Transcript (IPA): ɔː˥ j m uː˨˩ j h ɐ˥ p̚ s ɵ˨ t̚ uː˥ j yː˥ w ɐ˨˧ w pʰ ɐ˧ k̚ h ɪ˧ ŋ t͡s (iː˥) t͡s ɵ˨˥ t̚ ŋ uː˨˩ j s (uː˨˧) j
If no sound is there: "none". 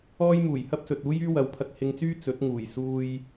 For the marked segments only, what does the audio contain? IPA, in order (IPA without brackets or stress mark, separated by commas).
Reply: yː˥, uː˧